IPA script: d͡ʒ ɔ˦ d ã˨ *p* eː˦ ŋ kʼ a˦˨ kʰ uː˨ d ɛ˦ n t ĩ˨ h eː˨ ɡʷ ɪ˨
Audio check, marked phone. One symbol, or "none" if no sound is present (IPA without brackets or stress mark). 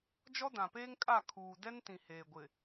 p